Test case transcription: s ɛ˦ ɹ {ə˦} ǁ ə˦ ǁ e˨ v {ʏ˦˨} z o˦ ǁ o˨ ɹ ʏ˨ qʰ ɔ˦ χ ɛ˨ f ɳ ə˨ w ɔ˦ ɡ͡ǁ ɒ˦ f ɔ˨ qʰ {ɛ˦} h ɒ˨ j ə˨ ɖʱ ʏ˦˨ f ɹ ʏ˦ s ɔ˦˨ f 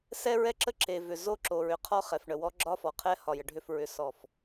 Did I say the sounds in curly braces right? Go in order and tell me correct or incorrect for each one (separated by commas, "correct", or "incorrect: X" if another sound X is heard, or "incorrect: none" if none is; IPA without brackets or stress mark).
incorrect: ɛ˦, incorrect: ʏ˨, correct